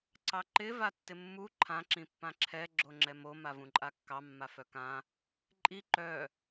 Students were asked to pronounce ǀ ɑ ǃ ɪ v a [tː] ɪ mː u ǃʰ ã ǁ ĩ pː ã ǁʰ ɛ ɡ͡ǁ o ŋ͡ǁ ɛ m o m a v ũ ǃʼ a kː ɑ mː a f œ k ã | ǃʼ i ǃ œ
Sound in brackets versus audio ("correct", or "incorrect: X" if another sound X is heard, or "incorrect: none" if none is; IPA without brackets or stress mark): correct